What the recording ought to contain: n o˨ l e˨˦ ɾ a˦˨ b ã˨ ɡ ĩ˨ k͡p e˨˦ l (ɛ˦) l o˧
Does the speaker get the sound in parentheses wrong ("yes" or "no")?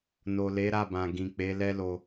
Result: no